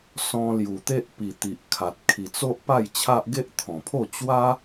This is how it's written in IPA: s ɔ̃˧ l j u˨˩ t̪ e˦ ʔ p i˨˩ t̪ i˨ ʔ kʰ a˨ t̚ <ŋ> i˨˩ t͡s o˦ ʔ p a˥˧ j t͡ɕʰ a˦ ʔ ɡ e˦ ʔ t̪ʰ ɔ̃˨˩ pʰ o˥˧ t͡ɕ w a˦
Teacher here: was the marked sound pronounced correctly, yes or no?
no